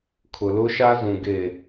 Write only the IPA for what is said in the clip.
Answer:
kʰʊ˨lʊ˦ʃa˦zũ˨ ɡe˨

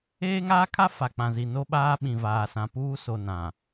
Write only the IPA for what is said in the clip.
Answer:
eː˦ŋaː˦kʰa˦ fa˨k͡pã˨zi˨ no˦ɓaː˦ ɓĩ˨vaː˨sã˨puː˦ so˨nã˨

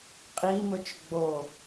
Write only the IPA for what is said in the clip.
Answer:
qʼimɵt͡ʃ ɡ͡bo

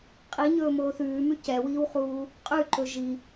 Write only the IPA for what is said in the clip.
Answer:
qʼiɲɵːmoː θʉːmʉ cɛwiːwχuː | qʼʉǃɵ ʒi

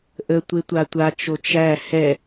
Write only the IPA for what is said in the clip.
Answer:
ʔətʷe tʷatʷat͡ʃo t͡ʃæ hɛ

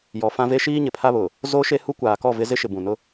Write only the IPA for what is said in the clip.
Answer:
jɔ˨fã˦ve˦ ʃiː˦ ɲɪ˨pʰa˦βʊ˨ | zo˦ʃe˦ hu˦kʷaː˨kɔ˦˨vɪ˦ zɪ˦ ʃɪ˨bũ˨nʊ˦

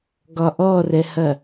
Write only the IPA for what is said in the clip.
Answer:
ɡɒʔɔrɛhɐ

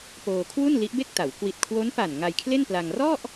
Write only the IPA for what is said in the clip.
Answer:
poː˧kʰwu˥˩nli˦˥ʔbe˥˩k̚ ta˩˦w kwi˨˩t̚kʰwo˦˥npa˨˩n ŋa˧jkʰle˥˩npla˧ŋ rɔ˥˩ʔ

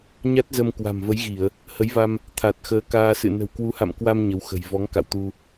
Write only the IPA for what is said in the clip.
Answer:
ɲa˦˥t̚zə˧mkwa̤˨˩mvə˨˦j ɣi˧˩˨ə̯ | hə˨˦jva˧m | t̪ʰa˨˩t̚xəː˨˦ kaː˧sɨ̰˧˨ nə̤˨˩wkwu˨˦ha̰˧˨mkwa˧m ɲə˨˦wxə̤˨˩j vɔ˨˦ŋ ka̰˧˨wt̪u˧

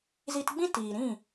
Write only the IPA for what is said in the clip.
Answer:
zi˧tɡ͡bĩ˦ tiː˨ɾĩ˦˨

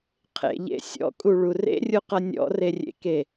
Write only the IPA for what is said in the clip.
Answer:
qʰḛʎḛ sʲɔ̰kʼuɭu rḛrʲuqʌ nʲɔ̰rerʲḛke

